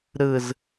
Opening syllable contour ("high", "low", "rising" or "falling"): falling